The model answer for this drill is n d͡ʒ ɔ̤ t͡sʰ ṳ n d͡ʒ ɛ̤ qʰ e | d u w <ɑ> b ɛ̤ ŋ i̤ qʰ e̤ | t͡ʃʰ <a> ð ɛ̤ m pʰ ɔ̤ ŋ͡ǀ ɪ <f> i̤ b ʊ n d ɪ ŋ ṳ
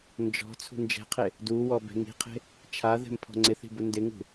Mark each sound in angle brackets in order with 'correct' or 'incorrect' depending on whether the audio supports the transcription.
incorrect: ɔ, correct, incorrect: θ

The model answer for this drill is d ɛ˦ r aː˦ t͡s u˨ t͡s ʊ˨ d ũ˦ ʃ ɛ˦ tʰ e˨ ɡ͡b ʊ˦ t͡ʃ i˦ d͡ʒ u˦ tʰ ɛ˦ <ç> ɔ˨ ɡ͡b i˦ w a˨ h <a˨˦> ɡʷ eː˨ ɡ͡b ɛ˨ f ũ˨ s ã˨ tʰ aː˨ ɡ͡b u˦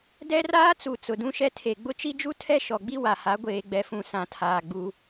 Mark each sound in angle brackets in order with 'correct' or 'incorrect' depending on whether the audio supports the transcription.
incorrect: ʃ, correct

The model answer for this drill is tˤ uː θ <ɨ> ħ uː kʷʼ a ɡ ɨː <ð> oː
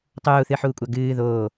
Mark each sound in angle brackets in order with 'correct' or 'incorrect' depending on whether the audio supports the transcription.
correct, correct

